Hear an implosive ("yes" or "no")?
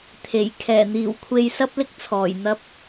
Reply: no